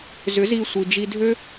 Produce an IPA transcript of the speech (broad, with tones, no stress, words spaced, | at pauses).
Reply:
zʏ˨˦z i˧ sʷi˨d͡ʒi˧dʱø˦